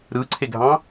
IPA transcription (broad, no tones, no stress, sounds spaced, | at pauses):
ɾ ɯ ǀʰ e ɡʱ ɑ̃